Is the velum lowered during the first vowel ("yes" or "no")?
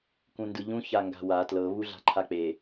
yes